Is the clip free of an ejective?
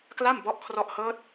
yes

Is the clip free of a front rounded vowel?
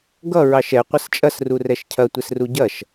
yes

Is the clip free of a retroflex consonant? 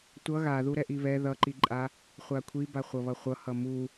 yes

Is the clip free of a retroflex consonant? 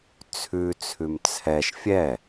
yes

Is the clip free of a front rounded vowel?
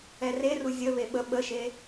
yes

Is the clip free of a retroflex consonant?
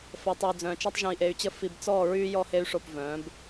no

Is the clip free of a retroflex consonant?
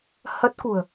yes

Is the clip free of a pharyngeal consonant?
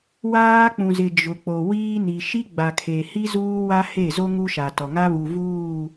yes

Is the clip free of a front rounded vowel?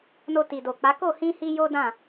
yes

